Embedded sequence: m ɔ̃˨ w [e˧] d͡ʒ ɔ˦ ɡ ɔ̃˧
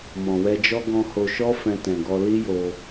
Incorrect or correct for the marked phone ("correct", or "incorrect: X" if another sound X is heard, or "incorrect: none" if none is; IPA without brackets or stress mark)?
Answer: incorrect: ɛ˧